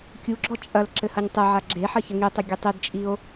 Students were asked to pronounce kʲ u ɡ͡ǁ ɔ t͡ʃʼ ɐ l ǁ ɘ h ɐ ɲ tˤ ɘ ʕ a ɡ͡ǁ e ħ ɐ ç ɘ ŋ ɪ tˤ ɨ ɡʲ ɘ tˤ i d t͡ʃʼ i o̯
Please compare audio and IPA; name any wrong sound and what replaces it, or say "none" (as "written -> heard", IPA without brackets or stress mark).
ɪ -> i